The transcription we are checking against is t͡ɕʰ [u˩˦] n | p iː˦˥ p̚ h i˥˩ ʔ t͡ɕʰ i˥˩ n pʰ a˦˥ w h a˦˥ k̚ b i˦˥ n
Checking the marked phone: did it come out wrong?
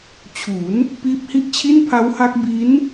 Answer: no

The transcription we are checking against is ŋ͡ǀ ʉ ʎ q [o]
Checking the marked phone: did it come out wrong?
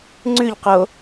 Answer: no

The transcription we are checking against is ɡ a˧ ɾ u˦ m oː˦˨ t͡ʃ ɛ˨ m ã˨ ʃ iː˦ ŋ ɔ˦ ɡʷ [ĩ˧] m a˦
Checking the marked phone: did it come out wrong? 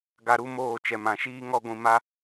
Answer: no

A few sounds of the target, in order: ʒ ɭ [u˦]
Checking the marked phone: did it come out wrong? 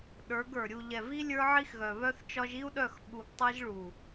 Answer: yes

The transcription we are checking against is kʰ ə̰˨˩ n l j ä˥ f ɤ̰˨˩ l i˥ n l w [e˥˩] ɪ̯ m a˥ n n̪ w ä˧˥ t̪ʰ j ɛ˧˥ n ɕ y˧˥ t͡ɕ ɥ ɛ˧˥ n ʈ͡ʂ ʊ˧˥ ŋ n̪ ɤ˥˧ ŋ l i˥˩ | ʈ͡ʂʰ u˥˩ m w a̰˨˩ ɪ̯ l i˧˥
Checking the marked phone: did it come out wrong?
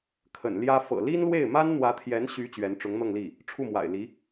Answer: no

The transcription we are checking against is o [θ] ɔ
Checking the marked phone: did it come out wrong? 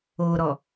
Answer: yes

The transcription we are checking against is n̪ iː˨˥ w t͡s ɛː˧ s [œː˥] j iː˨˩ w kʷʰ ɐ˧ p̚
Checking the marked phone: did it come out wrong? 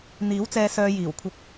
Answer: yes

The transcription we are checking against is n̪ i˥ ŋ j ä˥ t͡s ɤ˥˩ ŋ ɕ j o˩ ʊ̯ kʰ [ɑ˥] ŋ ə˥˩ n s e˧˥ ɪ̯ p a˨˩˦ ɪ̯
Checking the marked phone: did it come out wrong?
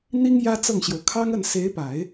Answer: no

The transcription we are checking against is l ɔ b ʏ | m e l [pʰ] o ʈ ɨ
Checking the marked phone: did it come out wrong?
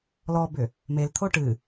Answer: yes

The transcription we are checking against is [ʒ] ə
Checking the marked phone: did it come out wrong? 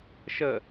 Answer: yes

